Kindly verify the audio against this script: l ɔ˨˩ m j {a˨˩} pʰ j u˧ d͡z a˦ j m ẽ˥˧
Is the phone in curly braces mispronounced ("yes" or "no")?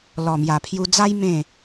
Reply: no